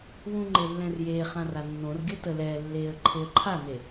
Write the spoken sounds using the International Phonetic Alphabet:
wũŋ͡ǃelːɛ̃r jeːχãra nːõr ɡʲətə lɛːlːeːə̯ ǃʰeə̯ǃʰane

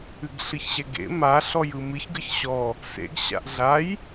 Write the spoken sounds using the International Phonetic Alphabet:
ɨɡɬɨçɕɛɡḛ ma ɬɔjɯmɨç ɡɯçɕɔ | sḛɡ ɕa̰ʔɮaj

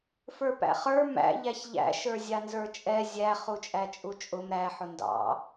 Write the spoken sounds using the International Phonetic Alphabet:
fə˞pæ̰χə˞ mæ̰ ʎæçʎæ̰ ʃə˞zʲɑnzə˞t͡ʃʼɛ zʲæ χut͡ʃʼæt͡ʃʼut͡ʃʼʊm ɾæ ħʊndɑ̰

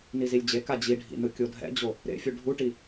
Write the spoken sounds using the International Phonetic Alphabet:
nizilʲd͡ʑeka d͡ʑiɖʱḭnɯ kʲodʱɛ̰d͡ʑo | ɾḛfʲu ɖʱuʈi

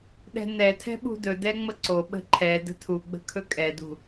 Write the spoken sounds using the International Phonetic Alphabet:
ɗɛ̤nɛtʰɛ̤ ɓṳdɵdɛ ŋ͡məǀo ɓə̤ǃʰɛ də̤tʰu ɡ͡bə̤kʰɵkʼɛdṳ

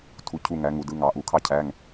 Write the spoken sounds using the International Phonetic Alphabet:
tʰu˨˥cʰu˦˨ŋæ˨˥ ŋu˩˧dɯ˧˥˧ŋɑ˨˥ ʔu˨˥kʰɑ˥cʰæ˧˥˧ŋ

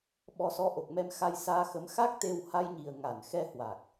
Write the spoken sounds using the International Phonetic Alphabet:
ɓɔ˧sɔ˧ʔo˨˩k̚mɛ˧m xa˧jsaː˧xə˨˦m xa˦˥k̚t̪e˧w ha˧jɲi˨˩ə̯ŋa˧˩n xɛ˧hwa˨˩k̚

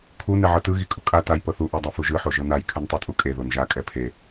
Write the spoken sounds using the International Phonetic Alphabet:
kʰu nɛʕɤtɯ ɣikʼukʼa taj pɤθu ʔadˤafuʒɯ ħoʒɤnaj kʰɯntˤutʼukʼe ðonʒa kʼɛpʰe

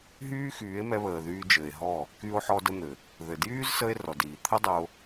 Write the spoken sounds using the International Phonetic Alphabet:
ɦyː˦xyː˨˦e̯mɛ˧ βəː˨ðyː˧d͡ʒɘ˨e̯ɦɔ˦˨ | ky˧o̯ħɔ˧də˧ n̪ɘ˨ | ðɘ˨djyː˦zsə˧e̯ rɔ˨diː˨ t̪ʰə˦dˤə˧o̯

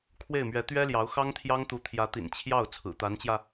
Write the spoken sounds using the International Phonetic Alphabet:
kʰwe˥˩ɪ̯mɥɛ˧˥ t̪ɥɛ˥ljɑ˧˥ʊ̯ xɑ˥ŋt̪ʰjɑ˥ŋt̪u˧˥ t̪ʰjä˧˥t̪ḭ˨˩n t͡ɕʰjɑ˥˩ʊ̯ t͡sʰɹ̩˨˩t̪a˧˥nt͡ɕjä˧

